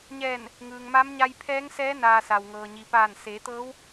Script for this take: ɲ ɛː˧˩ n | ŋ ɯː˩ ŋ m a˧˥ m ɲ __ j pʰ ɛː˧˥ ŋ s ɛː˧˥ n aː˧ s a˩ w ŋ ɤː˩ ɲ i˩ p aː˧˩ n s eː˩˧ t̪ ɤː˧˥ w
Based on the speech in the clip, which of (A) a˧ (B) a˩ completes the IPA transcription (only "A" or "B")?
A